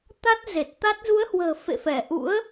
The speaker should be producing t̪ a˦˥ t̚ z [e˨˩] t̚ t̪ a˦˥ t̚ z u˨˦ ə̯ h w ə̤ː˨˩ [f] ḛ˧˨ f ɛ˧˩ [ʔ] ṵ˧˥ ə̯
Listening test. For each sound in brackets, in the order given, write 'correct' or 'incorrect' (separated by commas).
correct, correct, correct